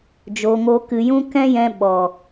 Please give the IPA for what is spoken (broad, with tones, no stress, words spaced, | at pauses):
d͡ʒoː˧ŋo˦kɨ˧ jũ˦kɛ̃˦jɛ̃˧ ɓɔ˨